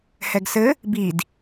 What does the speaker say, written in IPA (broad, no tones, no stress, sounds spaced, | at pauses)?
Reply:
h ɛ ɡ s ɘ | b i d